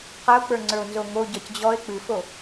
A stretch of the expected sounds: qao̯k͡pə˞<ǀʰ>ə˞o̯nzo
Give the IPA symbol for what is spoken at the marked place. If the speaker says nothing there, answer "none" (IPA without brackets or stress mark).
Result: ŋ͡ǀ